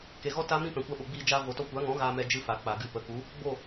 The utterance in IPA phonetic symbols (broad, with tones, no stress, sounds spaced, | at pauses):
k e˨ ɣ ɔ˦ t a˦ m ĩ˦ p ɛ̃˨ kʷ a˧ ɓ o˨ ɡ͡b iː˧ d͡ʒ aː˧ v o˨ t ɔ˧ kʷ a˨˦ ŋ ɔ̃˨˦ ɣ aː˧ m ɛ˧ d͡ʒ ɨ˦ f a˨ k͡p a˨ ɡ ɨ˧ p ə˨˦ k u˨˦ | ɡ͡b o˦˨